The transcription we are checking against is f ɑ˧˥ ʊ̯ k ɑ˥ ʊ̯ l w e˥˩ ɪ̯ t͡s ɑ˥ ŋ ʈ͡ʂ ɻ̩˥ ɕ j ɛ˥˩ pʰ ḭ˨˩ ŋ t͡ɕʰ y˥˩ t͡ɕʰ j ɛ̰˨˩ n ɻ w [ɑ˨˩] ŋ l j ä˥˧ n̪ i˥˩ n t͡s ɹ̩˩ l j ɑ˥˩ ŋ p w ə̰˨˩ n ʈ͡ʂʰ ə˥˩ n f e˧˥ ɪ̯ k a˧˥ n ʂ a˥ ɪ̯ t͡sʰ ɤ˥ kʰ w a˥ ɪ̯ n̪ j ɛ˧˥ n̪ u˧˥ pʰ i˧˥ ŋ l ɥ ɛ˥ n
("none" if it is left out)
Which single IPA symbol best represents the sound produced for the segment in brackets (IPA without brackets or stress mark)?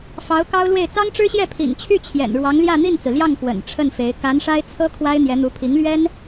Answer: ɑ˧˥